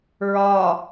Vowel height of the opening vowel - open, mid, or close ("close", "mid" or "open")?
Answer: open